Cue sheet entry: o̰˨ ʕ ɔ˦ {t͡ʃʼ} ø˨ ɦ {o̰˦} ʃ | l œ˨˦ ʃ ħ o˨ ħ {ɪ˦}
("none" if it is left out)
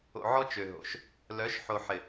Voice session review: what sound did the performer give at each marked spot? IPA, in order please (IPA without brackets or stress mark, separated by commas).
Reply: t͡ʃ, o̰˨, ɪ˨